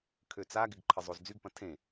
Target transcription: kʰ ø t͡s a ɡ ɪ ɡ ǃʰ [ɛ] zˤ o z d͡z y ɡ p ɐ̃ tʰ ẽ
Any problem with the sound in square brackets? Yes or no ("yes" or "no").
yes